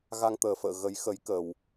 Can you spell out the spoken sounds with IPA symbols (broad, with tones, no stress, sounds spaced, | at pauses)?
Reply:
ɣ a˧ ŋ t̪ əː˨˩ f ə̰ː˧˨ ɣ ə˨˦ j x ə˨˦ j k əː˨˩ w